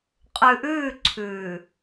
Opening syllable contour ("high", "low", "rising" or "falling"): low